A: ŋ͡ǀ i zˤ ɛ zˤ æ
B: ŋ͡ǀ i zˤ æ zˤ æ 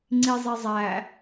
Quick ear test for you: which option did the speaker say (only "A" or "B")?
A